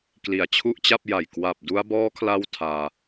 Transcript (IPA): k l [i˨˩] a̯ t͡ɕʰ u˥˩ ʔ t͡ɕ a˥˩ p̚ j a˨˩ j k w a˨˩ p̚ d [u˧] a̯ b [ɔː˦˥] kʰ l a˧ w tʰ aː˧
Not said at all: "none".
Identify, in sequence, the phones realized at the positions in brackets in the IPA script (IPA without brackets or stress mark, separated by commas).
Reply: i˨˩, u˧, ɔː˦˥